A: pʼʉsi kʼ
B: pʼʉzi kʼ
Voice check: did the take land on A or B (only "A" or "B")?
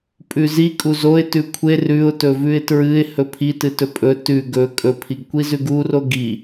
B